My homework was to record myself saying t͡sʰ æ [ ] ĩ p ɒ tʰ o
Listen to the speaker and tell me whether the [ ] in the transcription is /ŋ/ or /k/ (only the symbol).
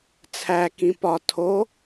k